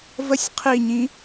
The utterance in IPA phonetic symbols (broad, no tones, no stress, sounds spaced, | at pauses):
v ə sʲ qʰ i ɲ ĩ